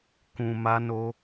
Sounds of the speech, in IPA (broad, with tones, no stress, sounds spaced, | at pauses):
k ũ˨ m a˧ n o˧